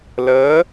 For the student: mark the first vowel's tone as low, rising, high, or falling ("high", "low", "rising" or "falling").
rising